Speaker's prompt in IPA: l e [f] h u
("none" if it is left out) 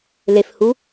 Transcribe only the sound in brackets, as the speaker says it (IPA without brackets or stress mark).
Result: f